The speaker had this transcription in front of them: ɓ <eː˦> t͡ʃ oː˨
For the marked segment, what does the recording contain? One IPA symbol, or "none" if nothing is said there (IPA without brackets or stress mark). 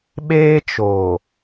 eː˦